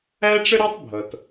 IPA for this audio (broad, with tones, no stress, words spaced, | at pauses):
æ˥ʈ͡ʂə˥ɾæ˥tˤbʱʌ˩t